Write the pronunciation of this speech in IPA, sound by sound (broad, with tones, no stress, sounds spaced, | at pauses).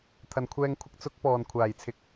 t̪ʰ ɐ˨˩ n kʷʰ ɛː˧ ŋ kʷʰ ɪ˧ k̚ t͡s ʊ˨˥ k̚ p ɔː˨˩ n kʷʰ aː˨˩ j t͡sʰ ɪ˨˥ k̚